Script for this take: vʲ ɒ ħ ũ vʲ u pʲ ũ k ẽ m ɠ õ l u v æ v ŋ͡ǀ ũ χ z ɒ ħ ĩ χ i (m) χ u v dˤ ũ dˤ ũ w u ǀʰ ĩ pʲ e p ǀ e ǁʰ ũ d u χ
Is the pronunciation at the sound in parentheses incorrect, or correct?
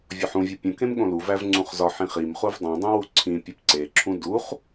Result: correct